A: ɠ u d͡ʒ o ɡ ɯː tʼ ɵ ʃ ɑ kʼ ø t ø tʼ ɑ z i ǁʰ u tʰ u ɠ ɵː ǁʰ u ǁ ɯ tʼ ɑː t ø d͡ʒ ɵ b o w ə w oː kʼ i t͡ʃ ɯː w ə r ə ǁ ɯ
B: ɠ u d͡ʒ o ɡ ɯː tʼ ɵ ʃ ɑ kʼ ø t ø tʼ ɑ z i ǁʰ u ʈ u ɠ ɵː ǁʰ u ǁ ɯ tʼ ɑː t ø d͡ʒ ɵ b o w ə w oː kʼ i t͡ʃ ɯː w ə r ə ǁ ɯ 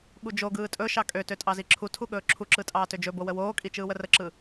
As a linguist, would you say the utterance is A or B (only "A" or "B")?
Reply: A